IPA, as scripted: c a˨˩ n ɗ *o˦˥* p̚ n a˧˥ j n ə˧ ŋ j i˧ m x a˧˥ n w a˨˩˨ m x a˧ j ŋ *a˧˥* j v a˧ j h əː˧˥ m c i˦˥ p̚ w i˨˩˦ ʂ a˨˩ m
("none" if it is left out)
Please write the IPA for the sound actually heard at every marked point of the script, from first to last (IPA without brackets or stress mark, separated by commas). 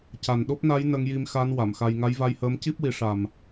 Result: o˦˥, a˧˥